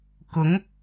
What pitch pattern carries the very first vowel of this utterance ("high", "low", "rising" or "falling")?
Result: rising